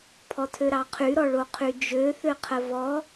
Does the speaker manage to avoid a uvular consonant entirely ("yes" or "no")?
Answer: no